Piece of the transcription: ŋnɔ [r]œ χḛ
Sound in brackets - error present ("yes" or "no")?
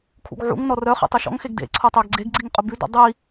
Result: no